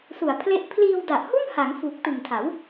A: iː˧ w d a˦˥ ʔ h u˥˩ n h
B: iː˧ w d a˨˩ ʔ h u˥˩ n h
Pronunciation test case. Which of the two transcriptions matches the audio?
B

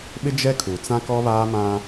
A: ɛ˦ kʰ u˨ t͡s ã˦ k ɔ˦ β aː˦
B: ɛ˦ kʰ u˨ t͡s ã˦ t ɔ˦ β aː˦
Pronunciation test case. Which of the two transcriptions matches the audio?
A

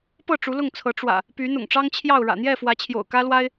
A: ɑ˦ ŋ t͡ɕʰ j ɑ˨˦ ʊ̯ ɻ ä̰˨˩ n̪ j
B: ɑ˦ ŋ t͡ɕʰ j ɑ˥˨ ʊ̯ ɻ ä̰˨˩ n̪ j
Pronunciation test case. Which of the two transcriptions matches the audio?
B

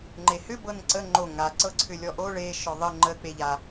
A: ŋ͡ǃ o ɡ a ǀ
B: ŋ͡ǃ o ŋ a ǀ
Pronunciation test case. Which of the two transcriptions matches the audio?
B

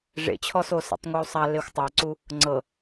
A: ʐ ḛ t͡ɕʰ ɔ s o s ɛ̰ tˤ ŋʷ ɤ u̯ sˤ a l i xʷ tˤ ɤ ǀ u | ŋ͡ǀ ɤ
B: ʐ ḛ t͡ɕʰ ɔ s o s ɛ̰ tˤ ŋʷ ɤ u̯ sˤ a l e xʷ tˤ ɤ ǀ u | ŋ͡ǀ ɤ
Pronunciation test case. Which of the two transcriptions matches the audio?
B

